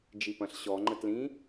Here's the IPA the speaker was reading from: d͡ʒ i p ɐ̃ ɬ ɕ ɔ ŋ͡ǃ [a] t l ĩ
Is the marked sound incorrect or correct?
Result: incorrect